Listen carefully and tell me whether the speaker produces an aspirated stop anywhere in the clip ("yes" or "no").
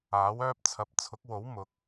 yes